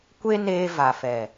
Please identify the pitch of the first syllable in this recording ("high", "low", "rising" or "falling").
high